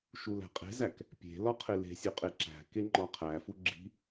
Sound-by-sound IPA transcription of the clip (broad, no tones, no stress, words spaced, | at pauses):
ʃulæ̤qʼe̤zæk | pʲe̤lɒ qʰele̤sʲu qʼeǁæ̤ke ŋ͡ǃɒqʰæfu ɡ͡ǁi̤